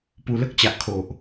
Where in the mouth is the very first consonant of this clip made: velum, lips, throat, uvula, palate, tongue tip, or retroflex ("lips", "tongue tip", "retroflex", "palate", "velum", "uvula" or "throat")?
lips